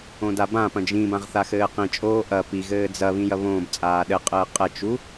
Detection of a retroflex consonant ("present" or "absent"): absent